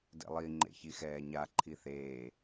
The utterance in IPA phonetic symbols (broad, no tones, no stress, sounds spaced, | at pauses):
d ḛ lˠ i ŋ͡ǃ ḛ ç i x ɛː ɲ a ǃʰ i θ eː